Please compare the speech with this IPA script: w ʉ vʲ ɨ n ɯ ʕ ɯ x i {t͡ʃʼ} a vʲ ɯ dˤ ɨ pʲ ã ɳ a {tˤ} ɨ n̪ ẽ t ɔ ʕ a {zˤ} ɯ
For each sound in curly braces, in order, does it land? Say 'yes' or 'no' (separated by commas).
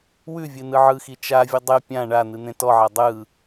no, no, no